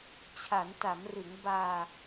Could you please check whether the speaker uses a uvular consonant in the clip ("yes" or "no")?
no